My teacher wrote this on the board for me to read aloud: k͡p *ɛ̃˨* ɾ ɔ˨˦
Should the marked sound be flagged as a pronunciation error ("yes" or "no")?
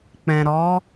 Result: no